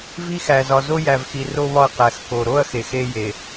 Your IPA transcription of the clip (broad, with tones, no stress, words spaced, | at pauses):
vi˦xæ˨ zɒ˨zo˦jæ˨vxi˨ ro˦ βɒ˦ɐ̯qæ˨xko˨ ɾo˦ɐ̯ xe˨xe˦ je˨